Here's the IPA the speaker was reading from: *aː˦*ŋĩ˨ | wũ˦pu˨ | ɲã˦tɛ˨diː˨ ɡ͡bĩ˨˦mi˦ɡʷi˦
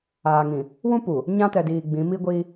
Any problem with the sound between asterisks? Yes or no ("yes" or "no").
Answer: yes